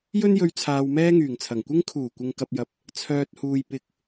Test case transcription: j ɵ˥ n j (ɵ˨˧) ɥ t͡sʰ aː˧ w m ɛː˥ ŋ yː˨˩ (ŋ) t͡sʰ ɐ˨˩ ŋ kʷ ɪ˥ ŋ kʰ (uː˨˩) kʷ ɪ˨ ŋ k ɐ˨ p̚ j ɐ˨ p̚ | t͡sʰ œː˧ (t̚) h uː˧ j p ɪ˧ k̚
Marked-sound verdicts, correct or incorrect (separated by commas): incorrect, correct, correct, correct